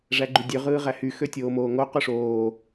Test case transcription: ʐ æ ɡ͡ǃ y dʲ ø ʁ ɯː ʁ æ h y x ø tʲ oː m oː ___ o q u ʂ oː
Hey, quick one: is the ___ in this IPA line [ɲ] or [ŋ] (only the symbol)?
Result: ŋ